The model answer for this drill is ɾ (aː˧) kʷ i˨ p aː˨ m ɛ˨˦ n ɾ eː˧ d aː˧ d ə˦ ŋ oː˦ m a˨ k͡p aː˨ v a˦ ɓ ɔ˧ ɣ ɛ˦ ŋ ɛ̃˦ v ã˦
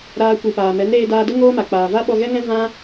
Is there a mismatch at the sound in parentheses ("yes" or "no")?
no